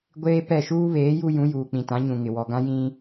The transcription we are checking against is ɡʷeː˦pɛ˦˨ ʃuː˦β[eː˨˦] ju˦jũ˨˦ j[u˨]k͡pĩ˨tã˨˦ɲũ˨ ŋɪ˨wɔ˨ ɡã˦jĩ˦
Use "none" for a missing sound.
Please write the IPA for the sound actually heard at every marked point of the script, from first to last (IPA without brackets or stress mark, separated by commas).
eː˨˦, uː˨